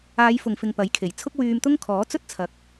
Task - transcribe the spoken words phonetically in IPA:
aː˨˧jfʊ˨ŋfɪ˨ŋ pɐ˨˥jkʰe˨˩jt͡sʰʊ˥k̚ wyː˧mt̪ʊ˥ŋ kʰɔː˨˥t͡sɵ˥t̚t͡sʰɐ˨˥k̚

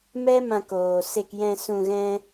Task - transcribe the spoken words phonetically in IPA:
mɛ˦mã˧koː˨ se˧kjɛ̃˧sũ˧ɣɛ̃˦

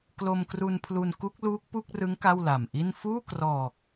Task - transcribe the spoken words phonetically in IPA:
klo˧mkru˧npʰlu˧n ku˦˥k̚luː˦˥k̚pu˥˩k̚rɯ˦˥ŋ ka˥˩wla˨˩mʔi˥˩n fuː˥˩krɔː˨˩k̚

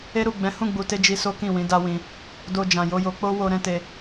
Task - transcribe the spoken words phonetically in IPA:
e˦ɾu˦˨ ɡ͡bɛ̃˨˦hũ˦˨ɡ͡bu˨te˧ d͡ʒi˧so˦kĩ˦˨wĩ˨˦ da˦wĩ˧ | do˧d͡ʒã˨jo˧jo˧ k͡po˦wo˧ ɾɛ̃˦te˧

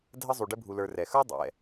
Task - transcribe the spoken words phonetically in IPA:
dʱə˦ zˤu˨ɖɘ˦bʱu˨ lə˞˨rɛ˩ xə˞˥dˤɛ̰˩

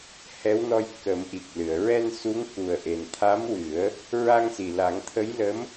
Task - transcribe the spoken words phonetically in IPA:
hɛ˧˥wnɔ˧j kə˨˩˦mʔi˨˩k̚lɨ˨˩˨ə̯ ɹɛ˧nsu˧˥ŋ ku˨˩ə̯ʔe˨˩nt̪ʰa˧˥mwɨ˨˩˦ə̯ | ɹa˧ŋsi˨˩la˨˩˦ŋ t̪ʰə˧˥jlə˧˥m

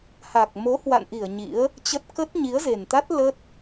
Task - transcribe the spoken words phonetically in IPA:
ha˨˩k̚mo˨˦ hwa̰˧˨nʔi˧˩ə̯ ɲḭ˧˥ə̯ | t͡ɕə˦˥t̚ kə˦˥t̚ɲi˨˦ə̯ze˨˩nt̪a˦˥t̚ lə˦˥t̚

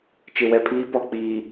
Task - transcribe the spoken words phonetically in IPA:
t͡ʃɪ˨wɛ˨pʰiː˦ pɔ˨ k͡piː˨

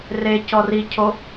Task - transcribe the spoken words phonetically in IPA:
re cɔricʰo

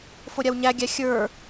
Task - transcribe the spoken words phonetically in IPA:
foɾʲawɲæɡʲæ xʲə˞

